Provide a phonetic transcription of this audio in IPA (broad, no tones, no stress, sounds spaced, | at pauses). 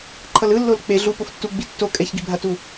ǃʰ ʌ l ɯ lː o l k͡p e ɮ u p o f tː u ɡ͡b i tː o kʼ ɛ ç ɡ i bʱ a t u